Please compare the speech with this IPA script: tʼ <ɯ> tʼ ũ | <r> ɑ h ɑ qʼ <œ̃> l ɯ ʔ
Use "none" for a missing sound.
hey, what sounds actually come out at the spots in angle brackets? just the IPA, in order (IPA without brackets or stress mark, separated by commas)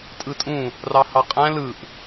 ɯ, r, æ̃